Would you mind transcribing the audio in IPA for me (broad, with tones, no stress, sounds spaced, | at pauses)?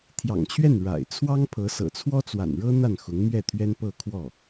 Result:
t̪ʰ j ɑ̰˨˩ ŋ t͡ɕʰ ɥ ɛ˥˩ n ɻ a̰˨˩ ɪ̯ t͡sʰ w ɑ˥ ŋ pʰ ɤ˧˥ s ɤ̰˨˩ t͡sʰ w ɔ˥ t͡s w a̰˨˩ n ɻ ɤ˥ n̪ a˥˩ n x ʊ˧˥ ŋ m ɥ ɛ˥˩ t̪ʰ ɥ ɛ˥ n p ɤ˥˧ kʰ w ɔ˥˩